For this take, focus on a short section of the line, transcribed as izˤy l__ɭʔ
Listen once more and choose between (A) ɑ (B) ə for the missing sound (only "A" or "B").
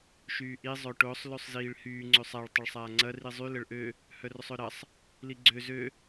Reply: B